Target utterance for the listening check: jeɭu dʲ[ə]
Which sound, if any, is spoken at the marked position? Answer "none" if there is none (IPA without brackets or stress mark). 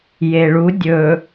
ɵ